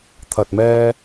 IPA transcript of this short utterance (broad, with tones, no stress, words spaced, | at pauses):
t̪ʰɐ˨t̚mɛː˧